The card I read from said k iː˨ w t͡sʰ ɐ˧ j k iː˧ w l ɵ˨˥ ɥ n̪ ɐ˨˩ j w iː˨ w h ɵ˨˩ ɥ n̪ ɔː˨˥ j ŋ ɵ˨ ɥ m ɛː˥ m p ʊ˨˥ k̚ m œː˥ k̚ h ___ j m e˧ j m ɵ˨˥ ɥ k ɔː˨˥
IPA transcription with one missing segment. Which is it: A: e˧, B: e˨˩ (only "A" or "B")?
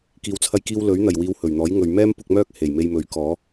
B